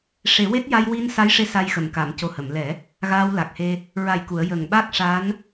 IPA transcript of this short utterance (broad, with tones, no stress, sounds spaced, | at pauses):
ʂ e˨˩˦ w e˦˥ t̚ j a˧ j w i˧ n s a˧˥ j ʂ e˧˥ s a˧ j x ə˨˩˨ m k a˨˩˨ m c o˨˩ h ə˨˩˨ m l ɛ˨˩˦ | ɣ aː˧ w l a˨˩ k̚ h e˧ | ɹ a˨˩ j k u˨˩˨ ə̯ j ə˨˩ ŋ ɓ a˦˥ k̚ ʂ a˧˥ n